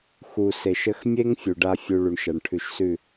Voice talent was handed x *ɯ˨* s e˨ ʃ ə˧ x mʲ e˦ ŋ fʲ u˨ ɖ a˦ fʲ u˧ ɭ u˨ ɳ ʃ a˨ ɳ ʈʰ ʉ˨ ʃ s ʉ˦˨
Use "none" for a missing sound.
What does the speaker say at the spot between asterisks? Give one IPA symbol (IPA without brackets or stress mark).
u˨